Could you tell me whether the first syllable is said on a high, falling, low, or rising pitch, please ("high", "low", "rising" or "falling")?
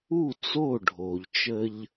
falling